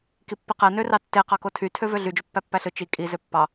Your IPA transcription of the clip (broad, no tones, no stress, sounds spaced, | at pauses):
k i pː i q æ n ø r ɑ tː e q ɑ k o tʰ y tʰ ø v ø ɮ y d͡ʒ ø pː æ pː æ ɬ ɯ t͡ʃ i kʼ i z ø pː ɑ